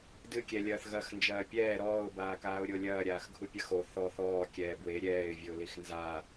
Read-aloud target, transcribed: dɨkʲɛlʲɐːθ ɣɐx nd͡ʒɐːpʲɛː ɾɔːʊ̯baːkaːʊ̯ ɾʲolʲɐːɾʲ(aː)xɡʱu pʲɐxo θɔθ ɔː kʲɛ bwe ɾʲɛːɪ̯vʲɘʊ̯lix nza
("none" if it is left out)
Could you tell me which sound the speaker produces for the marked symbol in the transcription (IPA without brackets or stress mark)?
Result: aː